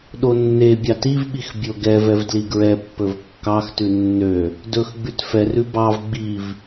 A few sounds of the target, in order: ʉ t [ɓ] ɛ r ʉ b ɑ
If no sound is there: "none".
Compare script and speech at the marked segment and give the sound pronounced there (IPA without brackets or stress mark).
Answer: f